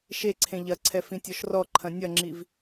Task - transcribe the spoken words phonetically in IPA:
ʃeǀʰẽ ʎɐǀʰɛ fĩtʲɔʃrɔǃʰɐ̃ nʲɐŋ͡ǁiv

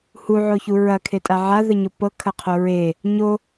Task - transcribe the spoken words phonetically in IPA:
huʕoçu ɹɐkʰetʼa ʕaðəɲo pɤkʰɐqʰo ɹe | ɲo

